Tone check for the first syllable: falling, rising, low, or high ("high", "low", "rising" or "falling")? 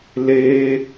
high